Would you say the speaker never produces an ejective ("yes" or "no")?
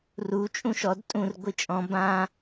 no